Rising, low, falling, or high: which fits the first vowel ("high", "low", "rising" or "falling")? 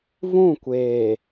falling